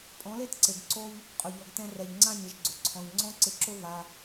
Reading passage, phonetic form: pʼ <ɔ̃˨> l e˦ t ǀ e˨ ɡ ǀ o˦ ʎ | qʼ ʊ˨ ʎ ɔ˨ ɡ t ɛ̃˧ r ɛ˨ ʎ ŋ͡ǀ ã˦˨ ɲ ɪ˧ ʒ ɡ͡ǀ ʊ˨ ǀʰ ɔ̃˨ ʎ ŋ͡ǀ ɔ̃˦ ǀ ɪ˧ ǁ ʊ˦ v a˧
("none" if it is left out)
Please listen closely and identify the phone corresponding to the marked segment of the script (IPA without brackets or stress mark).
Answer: ɔ̃˨˦